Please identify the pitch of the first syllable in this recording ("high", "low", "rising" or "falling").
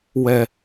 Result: low